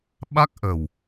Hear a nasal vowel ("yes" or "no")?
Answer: no